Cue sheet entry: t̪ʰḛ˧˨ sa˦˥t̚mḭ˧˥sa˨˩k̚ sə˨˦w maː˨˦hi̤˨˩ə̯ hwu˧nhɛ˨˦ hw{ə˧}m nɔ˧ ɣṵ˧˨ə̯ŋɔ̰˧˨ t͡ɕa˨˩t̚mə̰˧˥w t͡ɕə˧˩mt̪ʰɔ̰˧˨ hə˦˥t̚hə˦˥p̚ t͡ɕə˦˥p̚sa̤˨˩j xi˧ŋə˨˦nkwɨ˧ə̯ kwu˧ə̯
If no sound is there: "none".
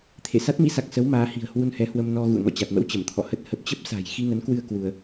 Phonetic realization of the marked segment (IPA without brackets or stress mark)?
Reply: ə˧